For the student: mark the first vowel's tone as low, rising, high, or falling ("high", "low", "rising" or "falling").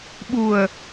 low